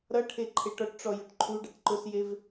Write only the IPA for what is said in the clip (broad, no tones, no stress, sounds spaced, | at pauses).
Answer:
ɾ ʌ ʈʰ e ǃʰ e ʈ ɔ ʈ ʈ͡ʂ ɔ j ʊ ʈ ǃʰ u ɖ ʌ ʈ ǃ ʊ s j e v